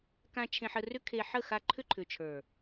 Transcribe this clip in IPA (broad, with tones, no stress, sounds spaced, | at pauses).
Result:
k ã˧ t͡ʃʰ ẽ˧ ħ ə˧ r ʏ˦ kʰ e˧ ħ ə˦˨ x a˧ ǃʰ ʏ˦ ǃʰ ʏ˨ t͡ʃʰ ə˞˨